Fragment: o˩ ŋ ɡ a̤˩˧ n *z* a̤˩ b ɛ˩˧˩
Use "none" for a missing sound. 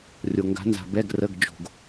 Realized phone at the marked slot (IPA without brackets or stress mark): z